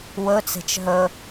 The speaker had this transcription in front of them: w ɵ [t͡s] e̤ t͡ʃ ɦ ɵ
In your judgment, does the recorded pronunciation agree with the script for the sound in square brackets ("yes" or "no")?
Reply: yes